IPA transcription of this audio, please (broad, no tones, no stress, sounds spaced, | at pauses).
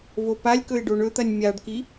v o p a lʲ k ɵ ɪ̯ ɖ o ɳ ɵ t̪ ɐ nʲ mʲ a ɖ k i